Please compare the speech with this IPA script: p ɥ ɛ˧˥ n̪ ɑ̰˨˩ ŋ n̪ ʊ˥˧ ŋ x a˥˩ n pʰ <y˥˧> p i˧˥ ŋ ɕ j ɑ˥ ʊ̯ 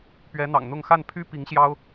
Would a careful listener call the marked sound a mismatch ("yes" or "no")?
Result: yes